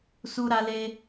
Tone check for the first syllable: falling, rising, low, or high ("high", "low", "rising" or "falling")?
high